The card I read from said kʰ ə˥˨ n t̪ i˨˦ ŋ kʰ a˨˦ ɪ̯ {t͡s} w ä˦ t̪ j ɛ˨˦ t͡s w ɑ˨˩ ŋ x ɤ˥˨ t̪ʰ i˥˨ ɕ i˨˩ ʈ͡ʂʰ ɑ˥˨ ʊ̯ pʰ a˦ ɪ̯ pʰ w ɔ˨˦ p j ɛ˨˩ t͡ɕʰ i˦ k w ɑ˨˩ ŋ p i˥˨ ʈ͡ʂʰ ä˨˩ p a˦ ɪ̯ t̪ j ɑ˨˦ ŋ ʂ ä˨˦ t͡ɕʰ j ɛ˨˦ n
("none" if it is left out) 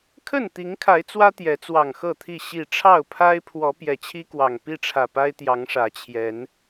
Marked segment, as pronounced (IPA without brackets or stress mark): t͡s